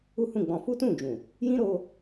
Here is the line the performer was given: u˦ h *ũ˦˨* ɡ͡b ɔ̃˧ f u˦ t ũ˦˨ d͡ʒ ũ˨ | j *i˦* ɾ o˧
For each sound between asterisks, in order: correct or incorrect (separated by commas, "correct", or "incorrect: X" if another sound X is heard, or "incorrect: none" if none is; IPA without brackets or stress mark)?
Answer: correct, incorrect: ĩ˦